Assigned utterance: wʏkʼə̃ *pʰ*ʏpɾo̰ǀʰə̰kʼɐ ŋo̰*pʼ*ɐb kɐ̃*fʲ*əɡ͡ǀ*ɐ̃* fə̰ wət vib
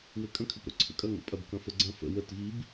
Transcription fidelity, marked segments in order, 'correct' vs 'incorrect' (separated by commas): incorrect, correct, incorrect, correct